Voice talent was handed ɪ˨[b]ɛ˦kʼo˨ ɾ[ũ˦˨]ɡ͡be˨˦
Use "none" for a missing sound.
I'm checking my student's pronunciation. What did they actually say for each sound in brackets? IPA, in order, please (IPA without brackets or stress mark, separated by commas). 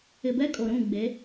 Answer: b, ũ˦˨